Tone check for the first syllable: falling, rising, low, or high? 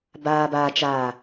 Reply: low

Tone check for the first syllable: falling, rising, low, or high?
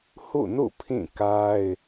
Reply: falling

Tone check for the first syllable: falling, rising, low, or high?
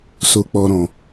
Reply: high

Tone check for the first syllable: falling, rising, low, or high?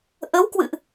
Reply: rising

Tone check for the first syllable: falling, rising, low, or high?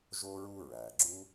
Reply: high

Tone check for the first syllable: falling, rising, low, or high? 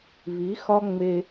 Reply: rising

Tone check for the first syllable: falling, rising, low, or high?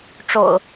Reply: low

